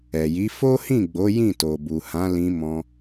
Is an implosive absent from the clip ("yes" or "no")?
yes